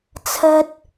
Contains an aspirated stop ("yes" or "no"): yes